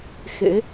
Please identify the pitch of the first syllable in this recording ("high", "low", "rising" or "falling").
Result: rising